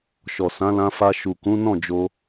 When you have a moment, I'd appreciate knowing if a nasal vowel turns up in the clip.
yes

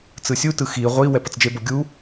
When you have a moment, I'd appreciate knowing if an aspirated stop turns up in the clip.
no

